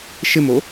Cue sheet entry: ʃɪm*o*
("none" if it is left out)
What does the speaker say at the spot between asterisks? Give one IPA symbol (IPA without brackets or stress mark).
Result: o